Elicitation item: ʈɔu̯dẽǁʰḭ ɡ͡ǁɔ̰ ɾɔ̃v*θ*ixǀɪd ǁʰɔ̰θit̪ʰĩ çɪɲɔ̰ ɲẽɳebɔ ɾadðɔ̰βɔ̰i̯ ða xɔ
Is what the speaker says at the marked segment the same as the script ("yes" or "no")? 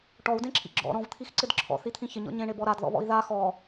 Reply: no